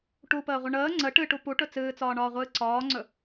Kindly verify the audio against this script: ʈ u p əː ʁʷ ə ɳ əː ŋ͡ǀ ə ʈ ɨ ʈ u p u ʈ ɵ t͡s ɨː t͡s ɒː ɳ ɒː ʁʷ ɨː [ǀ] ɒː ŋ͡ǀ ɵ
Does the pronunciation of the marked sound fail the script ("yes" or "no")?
no